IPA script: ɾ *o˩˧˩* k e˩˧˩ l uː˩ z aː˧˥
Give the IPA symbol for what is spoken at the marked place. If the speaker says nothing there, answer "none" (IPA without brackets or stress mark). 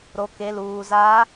o˩˧˩